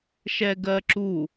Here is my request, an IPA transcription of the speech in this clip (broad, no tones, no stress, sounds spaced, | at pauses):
ʃ ɛ ɡ ɜ ǁ u